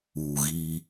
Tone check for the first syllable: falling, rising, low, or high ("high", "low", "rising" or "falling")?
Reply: low